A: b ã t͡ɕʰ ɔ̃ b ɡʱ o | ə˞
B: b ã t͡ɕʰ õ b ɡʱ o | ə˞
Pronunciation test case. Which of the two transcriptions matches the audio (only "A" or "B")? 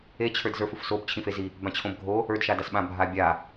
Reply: B